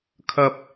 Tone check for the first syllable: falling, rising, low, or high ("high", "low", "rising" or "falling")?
low